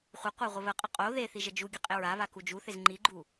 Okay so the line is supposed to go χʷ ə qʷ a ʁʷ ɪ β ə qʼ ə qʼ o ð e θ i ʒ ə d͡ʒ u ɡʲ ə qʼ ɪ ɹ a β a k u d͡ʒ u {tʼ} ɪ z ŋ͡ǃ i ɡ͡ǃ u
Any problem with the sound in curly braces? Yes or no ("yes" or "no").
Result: yes